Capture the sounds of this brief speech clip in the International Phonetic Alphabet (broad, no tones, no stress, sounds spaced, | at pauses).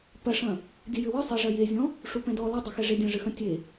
p ɐ ʂ ɐ̃ | dʲ ɘ j ɘ w ɨ sˤ e ʐ ɐ j e zʲ ɔ̃ | ʂ u p ɛ̃ d ɔ l ɐ dˤ ɘ x ɛ ʐ e dʲ ɐ̃ ʐ ɨ x ɐ̃ tʲ e